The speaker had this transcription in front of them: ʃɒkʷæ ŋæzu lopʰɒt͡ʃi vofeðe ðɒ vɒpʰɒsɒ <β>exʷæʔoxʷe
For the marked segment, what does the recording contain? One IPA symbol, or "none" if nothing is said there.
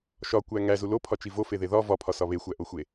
β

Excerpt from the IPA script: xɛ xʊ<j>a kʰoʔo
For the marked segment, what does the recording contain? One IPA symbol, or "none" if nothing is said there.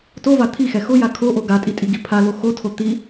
j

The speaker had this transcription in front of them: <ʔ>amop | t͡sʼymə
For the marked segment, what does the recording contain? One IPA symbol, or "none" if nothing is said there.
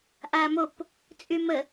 ʔ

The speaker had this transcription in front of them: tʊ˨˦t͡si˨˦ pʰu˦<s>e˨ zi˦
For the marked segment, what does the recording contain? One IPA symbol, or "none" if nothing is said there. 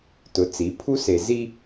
s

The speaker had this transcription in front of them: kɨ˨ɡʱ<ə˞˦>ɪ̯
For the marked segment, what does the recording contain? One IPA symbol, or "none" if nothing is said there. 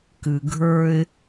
ə˞˦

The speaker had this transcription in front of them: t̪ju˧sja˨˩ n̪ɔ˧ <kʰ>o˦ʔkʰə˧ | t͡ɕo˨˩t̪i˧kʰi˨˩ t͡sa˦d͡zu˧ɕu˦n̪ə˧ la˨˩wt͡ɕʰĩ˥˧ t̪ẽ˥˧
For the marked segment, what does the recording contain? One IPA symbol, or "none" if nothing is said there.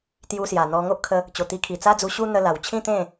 ŋ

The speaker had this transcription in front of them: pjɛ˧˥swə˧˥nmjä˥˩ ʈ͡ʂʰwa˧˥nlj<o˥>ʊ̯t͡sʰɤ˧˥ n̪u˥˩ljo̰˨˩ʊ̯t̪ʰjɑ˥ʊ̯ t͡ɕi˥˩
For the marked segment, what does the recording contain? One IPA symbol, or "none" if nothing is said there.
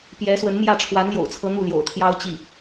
o̰˨˩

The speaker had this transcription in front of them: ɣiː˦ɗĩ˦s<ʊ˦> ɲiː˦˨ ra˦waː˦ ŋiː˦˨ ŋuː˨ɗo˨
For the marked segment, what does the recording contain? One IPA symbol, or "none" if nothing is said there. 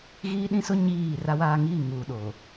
ʊ˦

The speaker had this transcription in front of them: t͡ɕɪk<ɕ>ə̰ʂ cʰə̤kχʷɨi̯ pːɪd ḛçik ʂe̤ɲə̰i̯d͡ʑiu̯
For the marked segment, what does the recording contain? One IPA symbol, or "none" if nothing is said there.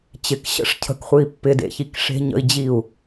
ɕ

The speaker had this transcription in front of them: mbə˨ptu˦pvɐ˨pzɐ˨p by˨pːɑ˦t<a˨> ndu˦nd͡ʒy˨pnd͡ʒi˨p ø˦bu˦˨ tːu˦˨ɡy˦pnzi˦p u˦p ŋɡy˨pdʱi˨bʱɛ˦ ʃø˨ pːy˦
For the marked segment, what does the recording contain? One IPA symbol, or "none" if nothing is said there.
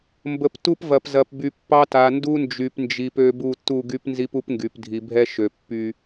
a˨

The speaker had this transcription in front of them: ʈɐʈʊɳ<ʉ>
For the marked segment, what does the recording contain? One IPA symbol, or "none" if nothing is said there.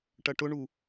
u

